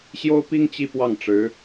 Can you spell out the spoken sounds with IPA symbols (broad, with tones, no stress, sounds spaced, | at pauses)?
ɕ j o˥ ʊ̯ p i˥ ŋ t͡ɕ i˥˧ p w ɑ˥˩ ŋ ʈ͡ʂ ɻ̩˧˥